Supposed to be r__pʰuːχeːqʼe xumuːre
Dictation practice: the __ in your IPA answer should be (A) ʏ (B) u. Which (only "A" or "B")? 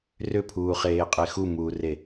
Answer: A